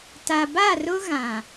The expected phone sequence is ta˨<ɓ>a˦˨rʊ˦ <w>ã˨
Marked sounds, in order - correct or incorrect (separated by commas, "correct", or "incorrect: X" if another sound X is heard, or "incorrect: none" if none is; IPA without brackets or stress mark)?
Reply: incorrect: b, incorrect: ɣ